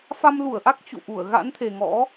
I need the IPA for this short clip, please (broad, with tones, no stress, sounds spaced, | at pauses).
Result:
f a˧ m l u˧˩ ə̯ ʔ a˦˥ k̚ t͡ɕ ṵ˧˨ ʔ u˧˩ ə̯ ɣ a̰˧˥ n t̪ʰ e˨˩ ŋ ɔ̰˧˥